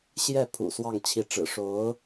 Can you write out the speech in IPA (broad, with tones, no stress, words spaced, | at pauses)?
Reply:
ɕjɛ˥˩ pʰṵ˨˩swɑ˥˩ŋt͡ɕʰi˧˥ʈ͡ʂɻ̩˨˩ ʂo˧˥ʊ̯